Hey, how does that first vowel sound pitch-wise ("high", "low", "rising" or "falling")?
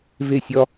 falling